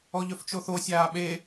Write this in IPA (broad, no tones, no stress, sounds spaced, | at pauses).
ɔ ʎ œ f t͡ʃ o θ o sʲ aː ɓ e